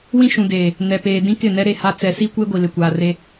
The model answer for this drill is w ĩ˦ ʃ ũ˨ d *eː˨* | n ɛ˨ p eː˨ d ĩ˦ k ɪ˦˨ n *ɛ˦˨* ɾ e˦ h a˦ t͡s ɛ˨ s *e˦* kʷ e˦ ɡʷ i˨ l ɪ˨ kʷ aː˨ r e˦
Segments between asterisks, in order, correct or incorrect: correct, incorrect, incorrect

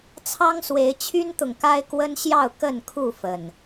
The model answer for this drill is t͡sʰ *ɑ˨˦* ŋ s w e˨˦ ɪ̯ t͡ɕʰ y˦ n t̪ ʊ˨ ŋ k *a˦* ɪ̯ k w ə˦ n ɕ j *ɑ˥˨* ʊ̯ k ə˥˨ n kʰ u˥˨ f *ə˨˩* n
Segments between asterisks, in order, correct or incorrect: incorrect, correct, correct, correct

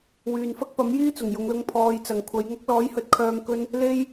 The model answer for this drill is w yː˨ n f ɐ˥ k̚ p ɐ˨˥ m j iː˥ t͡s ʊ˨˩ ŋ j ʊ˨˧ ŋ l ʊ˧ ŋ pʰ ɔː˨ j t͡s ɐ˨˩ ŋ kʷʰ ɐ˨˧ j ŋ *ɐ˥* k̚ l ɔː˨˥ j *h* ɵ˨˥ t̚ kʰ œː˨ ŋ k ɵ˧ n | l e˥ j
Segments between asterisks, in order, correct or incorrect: correct, correct

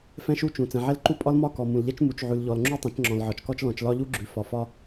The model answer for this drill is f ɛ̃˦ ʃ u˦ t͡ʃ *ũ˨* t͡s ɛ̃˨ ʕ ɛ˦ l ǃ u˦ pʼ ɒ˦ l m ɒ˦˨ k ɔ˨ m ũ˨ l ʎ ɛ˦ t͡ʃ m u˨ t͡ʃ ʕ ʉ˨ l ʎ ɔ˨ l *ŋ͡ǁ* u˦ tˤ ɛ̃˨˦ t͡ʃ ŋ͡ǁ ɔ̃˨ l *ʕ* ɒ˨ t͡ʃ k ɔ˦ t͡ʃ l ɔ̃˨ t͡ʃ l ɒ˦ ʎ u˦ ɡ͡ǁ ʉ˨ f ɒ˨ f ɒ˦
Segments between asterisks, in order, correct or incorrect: correct, correct, correct

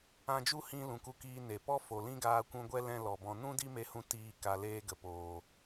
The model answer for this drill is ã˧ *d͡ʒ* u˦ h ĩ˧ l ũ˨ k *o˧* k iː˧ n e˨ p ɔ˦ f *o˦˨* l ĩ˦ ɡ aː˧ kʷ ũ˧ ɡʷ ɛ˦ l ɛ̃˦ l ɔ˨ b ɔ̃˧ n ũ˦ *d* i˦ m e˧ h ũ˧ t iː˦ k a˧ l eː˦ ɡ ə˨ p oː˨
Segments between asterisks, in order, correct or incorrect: correct, incorrect, incorrect, correct

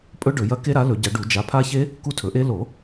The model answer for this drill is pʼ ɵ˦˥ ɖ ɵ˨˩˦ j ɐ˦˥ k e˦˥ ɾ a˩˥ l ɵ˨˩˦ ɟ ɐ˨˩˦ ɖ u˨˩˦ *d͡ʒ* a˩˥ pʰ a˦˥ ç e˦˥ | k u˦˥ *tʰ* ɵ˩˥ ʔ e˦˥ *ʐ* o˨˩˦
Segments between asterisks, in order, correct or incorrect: correct, correct, incorrect

